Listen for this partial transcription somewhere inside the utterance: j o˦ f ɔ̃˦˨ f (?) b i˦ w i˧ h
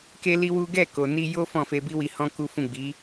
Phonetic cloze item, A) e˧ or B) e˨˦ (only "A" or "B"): A